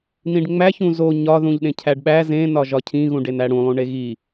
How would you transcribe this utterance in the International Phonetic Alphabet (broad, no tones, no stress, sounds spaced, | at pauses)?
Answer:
n ĩ ɖ ŋ͡m æ ç ũ z o ɲ ɒ ð ũ ʎ ɗ ẽ cʰ æ ɖ ɓ æ z ẽ n ɒ ʒ ɒ cʰ ĩ ɣ ũ ɖ e n æ ɽ ũ lˠ ũ ɳ e ɣ i